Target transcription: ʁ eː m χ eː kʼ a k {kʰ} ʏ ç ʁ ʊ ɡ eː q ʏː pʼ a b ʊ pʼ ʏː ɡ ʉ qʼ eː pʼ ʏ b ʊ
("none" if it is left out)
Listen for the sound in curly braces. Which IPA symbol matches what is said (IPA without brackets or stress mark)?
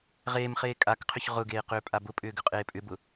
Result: qʰ